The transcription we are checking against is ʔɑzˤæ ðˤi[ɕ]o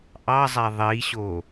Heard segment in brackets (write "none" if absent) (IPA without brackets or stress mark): ɕ